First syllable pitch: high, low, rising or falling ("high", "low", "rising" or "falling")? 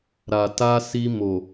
low